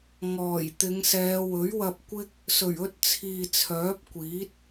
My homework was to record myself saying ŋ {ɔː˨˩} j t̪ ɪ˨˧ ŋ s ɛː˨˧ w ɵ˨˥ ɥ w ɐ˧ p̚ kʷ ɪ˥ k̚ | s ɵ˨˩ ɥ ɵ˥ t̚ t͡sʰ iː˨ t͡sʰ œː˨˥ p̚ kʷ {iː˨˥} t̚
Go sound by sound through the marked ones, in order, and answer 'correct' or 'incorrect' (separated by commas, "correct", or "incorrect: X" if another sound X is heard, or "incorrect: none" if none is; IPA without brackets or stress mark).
correct, correct